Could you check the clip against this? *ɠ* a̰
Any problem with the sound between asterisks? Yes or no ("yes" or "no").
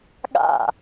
no